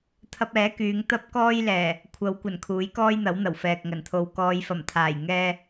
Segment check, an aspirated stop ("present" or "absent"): present